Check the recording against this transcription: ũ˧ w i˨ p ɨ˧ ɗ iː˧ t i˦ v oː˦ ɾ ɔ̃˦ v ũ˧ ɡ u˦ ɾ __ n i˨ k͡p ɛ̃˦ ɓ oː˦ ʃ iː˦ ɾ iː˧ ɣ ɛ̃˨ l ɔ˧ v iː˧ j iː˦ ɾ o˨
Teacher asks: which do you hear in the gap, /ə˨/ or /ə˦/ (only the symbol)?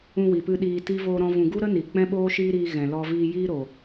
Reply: ə˦